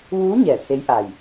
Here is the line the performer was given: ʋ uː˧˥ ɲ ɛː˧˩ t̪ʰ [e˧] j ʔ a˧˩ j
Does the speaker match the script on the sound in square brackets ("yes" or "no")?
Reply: no